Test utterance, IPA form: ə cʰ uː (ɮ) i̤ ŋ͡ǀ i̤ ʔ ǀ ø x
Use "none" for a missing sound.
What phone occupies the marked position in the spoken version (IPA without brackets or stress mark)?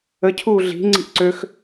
ɮ